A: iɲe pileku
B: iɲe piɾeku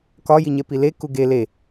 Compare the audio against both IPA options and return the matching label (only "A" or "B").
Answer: A